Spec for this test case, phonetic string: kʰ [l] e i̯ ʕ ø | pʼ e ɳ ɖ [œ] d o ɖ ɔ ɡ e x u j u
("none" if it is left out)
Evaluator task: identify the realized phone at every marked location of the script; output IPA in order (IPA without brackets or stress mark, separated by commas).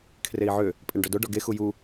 r, œ